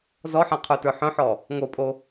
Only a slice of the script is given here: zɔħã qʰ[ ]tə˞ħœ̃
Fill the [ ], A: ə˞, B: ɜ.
A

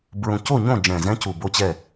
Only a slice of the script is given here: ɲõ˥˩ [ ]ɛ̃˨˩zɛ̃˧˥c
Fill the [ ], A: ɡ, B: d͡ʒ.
B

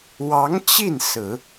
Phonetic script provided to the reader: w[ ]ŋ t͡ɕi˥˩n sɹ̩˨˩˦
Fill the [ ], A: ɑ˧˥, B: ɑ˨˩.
A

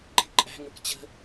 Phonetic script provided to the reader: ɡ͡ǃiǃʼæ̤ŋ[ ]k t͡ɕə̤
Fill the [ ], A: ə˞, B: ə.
A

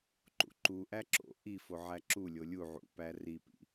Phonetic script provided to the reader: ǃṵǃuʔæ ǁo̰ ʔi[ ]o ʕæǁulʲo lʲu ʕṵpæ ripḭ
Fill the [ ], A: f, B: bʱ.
A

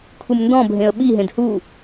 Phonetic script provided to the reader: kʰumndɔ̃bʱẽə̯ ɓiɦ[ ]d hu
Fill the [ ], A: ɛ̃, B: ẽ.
B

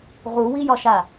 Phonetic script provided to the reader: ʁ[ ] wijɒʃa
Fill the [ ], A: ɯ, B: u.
B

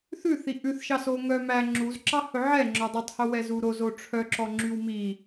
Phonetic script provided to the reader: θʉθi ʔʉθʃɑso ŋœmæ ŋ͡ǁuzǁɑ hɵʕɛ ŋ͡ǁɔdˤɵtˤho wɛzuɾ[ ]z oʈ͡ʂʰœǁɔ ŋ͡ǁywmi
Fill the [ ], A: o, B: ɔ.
A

